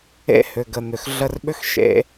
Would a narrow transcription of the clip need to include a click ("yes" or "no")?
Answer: no